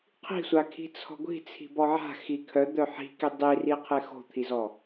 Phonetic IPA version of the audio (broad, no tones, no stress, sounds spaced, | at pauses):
qʰ i̤ sʷ a kʰ i̤ t͡sʰ ɔ̤ ɡʷ i̤ t͡sʰ i̤ b ɔ ʕ a̤ x i kʰ œ d̪ œ ħ i̤ k i dˤ i r i qʰ e x o̤ t̪ʰ i z ɔ